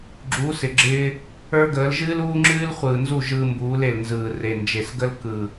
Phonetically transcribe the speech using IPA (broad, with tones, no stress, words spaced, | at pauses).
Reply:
ɡ͡ǁuː˨˦sɪ˨ɡ͡ǁɪː˧ | ə˞˦ɡəː˨˦l ʒɨː˦luː˦ŋ͡ǁɨː˦l χʷɯː˨nzu˦˨ ʒɯː˧mbuː˨˦le˨lnzɯː˨ re˨nd͡ʒe˨sɡə˦l kɯ˨